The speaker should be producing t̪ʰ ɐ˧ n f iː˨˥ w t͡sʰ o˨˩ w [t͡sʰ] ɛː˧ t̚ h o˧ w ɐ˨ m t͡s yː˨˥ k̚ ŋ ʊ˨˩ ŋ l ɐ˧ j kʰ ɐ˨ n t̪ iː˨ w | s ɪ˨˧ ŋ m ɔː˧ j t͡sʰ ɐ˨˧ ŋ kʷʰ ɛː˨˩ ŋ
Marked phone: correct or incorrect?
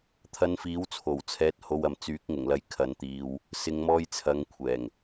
correct